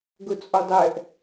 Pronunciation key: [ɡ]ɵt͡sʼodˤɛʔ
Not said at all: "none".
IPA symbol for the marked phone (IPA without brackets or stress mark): ɡ